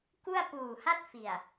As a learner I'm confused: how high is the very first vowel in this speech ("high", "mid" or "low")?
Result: high